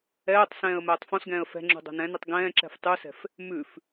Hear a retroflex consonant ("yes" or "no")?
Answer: no